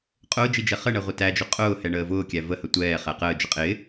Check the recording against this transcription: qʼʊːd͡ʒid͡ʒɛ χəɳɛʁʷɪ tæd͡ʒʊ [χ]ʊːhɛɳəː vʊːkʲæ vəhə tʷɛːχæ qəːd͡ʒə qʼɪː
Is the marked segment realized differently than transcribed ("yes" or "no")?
yes